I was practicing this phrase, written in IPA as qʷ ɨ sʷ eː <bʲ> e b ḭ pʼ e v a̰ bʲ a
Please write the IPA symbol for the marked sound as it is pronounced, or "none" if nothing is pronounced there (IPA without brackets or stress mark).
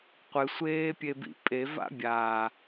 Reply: pʲ